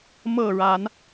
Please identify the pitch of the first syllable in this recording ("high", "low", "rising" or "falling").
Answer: falling